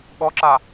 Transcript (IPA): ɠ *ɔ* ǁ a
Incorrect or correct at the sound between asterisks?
correct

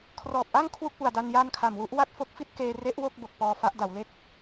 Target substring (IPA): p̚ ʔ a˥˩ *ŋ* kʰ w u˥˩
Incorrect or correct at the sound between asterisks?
correct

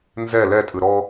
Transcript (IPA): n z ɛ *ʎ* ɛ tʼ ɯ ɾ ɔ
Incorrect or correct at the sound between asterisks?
incorrect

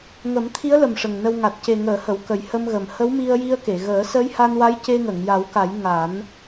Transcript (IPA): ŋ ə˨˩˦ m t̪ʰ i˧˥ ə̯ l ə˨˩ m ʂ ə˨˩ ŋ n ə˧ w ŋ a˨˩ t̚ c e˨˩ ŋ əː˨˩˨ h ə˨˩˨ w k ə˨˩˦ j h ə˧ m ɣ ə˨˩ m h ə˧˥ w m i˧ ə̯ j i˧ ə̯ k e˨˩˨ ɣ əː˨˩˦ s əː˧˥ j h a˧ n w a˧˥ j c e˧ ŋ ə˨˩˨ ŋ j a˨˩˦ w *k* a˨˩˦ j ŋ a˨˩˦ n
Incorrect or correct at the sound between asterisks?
correct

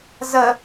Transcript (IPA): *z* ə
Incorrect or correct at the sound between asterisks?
correct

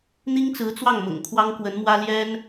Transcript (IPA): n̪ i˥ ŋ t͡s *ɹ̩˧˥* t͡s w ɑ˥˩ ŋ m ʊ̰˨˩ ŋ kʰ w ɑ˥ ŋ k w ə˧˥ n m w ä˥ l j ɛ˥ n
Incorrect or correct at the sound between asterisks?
correct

